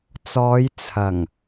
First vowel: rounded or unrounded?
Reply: rounded